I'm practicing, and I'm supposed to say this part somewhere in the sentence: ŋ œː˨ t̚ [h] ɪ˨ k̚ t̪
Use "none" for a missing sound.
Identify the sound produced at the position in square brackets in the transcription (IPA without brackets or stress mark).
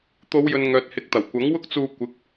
h